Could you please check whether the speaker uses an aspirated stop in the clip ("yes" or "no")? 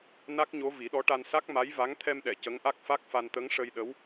yes